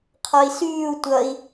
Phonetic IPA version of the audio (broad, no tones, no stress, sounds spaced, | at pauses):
qʰ ɒ i̯ s yː u̯ tʷ ʌ i̯